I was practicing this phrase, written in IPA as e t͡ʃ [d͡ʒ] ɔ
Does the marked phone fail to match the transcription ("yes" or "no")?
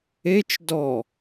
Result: yes